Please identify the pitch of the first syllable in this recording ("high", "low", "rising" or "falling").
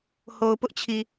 low